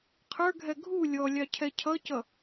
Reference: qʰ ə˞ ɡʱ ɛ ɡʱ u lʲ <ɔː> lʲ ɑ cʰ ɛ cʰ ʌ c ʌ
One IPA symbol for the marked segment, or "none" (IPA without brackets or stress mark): ɔ